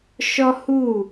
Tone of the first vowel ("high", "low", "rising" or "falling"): high